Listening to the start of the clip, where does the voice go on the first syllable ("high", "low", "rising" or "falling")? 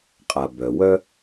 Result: low